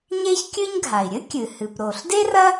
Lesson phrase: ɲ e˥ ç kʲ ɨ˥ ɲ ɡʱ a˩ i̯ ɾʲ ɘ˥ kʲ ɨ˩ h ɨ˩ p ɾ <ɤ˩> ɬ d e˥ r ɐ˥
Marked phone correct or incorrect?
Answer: incorrect